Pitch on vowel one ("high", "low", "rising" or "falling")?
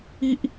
high